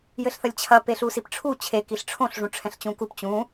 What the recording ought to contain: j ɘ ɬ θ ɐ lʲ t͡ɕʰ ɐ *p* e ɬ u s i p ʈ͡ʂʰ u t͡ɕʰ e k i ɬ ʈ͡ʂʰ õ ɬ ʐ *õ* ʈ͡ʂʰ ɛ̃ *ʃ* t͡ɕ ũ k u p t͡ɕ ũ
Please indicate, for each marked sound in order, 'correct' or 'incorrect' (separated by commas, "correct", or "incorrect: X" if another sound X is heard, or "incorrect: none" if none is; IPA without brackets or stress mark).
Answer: correct, incorrect: ũ, incorrect: ɬ